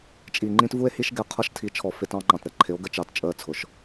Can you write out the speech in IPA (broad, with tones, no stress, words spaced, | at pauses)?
t͡ʃʼi˨ŋ͡ǃĩ˦tvu˦e̯hi˦ʃ ɡɛ˨qʰʌ˦ʃtʰi˨˦ t͡ʃʰɔ˨fɪ˦tɑ̃˦ŋ͡ǃɑ̃˨t ɾɛ˨ǃʰɪ˨˦o̯ ɡə˦t͡ʃɑ˨t t͡ʃʼəː˦t͡sʰʊ˨ʃ